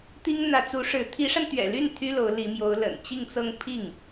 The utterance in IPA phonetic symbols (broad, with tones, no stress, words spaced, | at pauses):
t̪i˥ŋ n̪ä˧˥t͡su˧˥ʂɻ̩˧˥ t̪ʰi˧˥ʂa˧nt̪ɥɛ̰˨˩ ly˥˩n t̪ʰy˥lo˧˥ʊ̯li˧˥mjo˧˥ʊ̯ lə̰˨˩nt͡ɕi˥˧ŋt͡sɤ˥˧ŋ pʰi˥˩ŋ